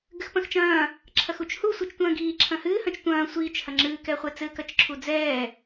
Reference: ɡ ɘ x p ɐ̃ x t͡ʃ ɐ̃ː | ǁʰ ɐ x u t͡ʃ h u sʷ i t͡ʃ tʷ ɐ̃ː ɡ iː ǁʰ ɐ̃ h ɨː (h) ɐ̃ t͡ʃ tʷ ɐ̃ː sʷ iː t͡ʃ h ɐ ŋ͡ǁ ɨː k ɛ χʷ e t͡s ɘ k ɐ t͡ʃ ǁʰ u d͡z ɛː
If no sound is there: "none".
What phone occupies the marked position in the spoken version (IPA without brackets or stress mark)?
h